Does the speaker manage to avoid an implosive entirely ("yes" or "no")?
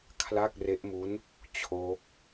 yes